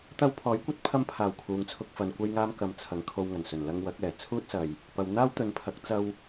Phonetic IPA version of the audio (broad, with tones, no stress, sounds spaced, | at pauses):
t̪ ɐ˧ w pʰ ɔː˨˥ j kʷ ɐ˧ t̚ pʰ ɐ˧ m pʰ aː˨˩ w kʰ uː˨ ŋ t͡sʰ ʊ˧ k̚ f ɐ˨ n kʷ ɐ˧ j ŋ aː˧ m k ɐ˨ m t͡sʰ ɐ˨˧ ŋ kʰ o˧ w ŋ ɐ˨˩ n s ɵ˨˩ n l ɐ˧ ŋ w ɐ˨˥ k̚ ɛː˨˩ t͡sʰ uː˥ t̚ s ɐ˨ j | p ɐ˨ w n̪ aː˥ w t̪ ɵ˨˧ n pʰ ɐ˨˥ k̚ t͡s ɐ˧ w